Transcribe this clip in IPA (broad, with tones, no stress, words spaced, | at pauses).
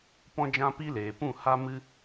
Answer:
pɔ̃˦d͡ʒã˦pi˦leː˨ pũ˦˨ha˦mɨ˦